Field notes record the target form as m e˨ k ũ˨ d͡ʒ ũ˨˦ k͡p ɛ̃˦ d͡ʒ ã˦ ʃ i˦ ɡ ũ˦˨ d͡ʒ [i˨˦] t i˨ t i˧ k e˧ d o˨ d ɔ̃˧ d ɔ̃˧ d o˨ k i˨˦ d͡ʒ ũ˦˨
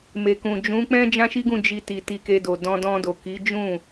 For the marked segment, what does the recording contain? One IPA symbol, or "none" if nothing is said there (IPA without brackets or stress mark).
i˧